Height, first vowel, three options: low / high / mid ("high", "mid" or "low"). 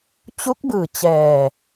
high